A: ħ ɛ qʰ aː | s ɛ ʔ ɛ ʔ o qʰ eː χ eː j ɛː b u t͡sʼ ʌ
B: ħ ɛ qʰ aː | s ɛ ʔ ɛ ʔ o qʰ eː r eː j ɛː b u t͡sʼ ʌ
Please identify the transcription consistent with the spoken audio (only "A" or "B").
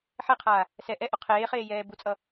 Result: A